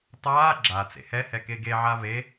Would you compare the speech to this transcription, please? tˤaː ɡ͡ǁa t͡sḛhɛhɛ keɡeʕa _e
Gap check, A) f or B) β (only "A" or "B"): B